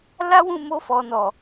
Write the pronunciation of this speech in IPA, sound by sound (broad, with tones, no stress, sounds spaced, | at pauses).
l a˦ w ũ˦˨ m o˧ f ɔ˨ n ɔ˨